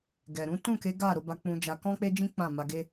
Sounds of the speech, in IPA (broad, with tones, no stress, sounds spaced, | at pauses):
ɡ ɛ˨ ɾ ũ˨˦ t ũ˦˨ k e˨˦ ɡ a˦˨ ɾ o˧ b a˧ k͡p ũ˧ d͡ʒ a˧ k ɔ̃˦ k͡p e˦ d͡ʒ ĩ˦ k͡p ã˦˨ m a˧ ɡ e˦